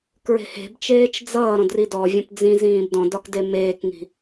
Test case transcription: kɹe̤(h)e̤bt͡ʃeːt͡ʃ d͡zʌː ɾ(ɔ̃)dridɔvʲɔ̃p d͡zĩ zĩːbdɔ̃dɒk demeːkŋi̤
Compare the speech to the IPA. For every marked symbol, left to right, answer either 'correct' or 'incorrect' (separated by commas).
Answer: correct, correct